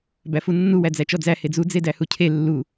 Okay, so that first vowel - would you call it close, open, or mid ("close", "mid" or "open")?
open